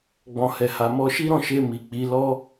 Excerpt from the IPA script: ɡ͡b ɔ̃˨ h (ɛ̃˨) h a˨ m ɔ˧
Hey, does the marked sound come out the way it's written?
no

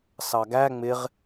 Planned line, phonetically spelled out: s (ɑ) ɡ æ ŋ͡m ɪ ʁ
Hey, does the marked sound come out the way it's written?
yes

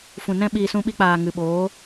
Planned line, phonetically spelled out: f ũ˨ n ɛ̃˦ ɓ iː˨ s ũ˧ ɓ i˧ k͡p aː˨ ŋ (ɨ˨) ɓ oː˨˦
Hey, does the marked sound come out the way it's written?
yes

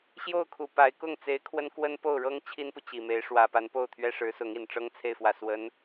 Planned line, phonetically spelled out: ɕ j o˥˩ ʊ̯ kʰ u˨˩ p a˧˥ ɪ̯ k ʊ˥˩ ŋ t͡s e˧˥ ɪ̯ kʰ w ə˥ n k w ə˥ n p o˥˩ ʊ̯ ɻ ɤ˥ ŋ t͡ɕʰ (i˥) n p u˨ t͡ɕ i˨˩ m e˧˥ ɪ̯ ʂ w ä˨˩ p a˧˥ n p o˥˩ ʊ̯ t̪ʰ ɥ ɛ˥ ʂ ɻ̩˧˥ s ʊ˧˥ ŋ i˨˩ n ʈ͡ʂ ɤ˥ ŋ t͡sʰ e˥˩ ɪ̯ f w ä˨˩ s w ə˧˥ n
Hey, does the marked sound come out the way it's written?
yes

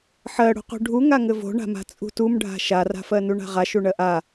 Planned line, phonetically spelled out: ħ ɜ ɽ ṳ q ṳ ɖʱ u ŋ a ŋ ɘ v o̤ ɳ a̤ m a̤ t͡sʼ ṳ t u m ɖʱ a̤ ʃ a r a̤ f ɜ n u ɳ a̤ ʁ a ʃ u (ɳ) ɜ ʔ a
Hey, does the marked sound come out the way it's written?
yes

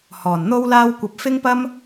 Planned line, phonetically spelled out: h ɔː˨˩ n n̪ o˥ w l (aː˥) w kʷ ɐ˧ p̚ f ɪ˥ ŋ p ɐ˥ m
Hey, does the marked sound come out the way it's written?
yes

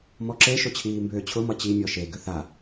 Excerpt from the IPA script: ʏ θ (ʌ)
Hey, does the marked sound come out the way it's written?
no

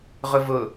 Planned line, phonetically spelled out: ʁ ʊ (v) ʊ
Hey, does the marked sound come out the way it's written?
yes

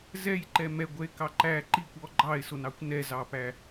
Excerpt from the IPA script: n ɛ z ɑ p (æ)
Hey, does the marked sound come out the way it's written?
yes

